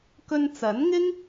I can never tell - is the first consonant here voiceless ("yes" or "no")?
yes